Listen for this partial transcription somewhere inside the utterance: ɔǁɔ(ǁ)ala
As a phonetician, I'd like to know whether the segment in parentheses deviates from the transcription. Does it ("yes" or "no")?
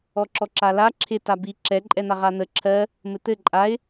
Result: no